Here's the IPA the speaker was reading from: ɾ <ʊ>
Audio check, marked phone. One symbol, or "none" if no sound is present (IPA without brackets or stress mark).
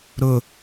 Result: ʊ